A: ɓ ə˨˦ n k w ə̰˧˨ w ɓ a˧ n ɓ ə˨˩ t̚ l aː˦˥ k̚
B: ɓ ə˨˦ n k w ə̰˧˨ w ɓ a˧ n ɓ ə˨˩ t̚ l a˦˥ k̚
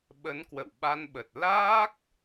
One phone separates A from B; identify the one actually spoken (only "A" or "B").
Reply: A